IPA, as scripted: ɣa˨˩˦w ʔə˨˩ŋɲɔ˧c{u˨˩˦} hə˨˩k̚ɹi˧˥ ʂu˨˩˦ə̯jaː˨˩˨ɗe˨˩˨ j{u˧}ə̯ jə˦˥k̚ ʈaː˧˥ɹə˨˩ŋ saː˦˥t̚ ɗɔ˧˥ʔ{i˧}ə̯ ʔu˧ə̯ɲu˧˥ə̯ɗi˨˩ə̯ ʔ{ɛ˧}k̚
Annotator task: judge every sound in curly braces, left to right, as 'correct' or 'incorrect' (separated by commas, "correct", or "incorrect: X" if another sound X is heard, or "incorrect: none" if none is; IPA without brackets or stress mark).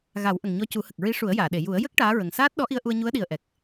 correct, incorrect: u˨˩˦, correct, incorrect: ɛ˨˩